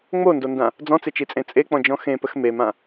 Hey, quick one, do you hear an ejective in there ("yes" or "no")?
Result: yes